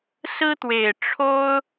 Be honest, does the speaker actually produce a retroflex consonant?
yes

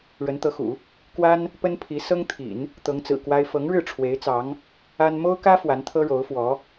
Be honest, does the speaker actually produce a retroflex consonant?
yes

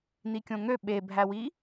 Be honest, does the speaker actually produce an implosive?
yes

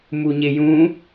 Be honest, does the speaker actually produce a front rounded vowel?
no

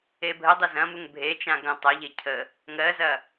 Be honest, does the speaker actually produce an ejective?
no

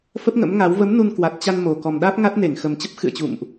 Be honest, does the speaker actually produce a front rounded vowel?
no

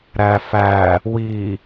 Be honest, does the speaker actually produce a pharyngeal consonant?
no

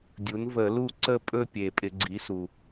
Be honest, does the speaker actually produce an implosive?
no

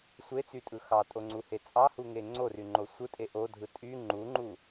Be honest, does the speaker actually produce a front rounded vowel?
yes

